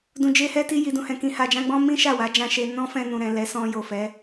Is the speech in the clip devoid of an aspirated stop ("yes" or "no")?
yes